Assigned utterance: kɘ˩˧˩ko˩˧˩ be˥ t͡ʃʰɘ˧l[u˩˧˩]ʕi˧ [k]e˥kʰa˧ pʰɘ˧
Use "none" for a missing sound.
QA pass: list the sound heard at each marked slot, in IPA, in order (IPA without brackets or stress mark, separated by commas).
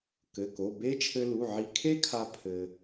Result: u˩˧˩, kʰ